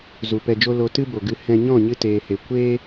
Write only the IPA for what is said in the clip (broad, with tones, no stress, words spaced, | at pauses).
zu˨pɛ˧d͡ʒo˦ lo˧tɨ˦bo˨ɡɨ˧ hɛ̃˧ɲɔ̃˦˨ɲɨ˧ teː˨he˨ kʷeː˦